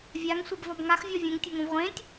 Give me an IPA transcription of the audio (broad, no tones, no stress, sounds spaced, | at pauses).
vʲ a ŋ sʷ ɛ b v ɒ b ŋ a x vʲ ɔ vʲ ɛ̃ ŋ tʲ o ŋ õ v ʁʷ ẽ tʲ